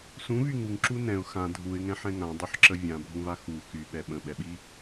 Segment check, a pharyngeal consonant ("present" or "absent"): present